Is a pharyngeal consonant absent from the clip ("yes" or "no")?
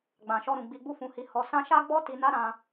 yes